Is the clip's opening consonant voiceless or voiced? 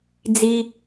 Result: voiced